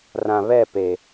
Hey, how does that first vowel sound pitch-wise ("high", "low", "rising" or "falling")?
low